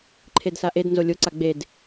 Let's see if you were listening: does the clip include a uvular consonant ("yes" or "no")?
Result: no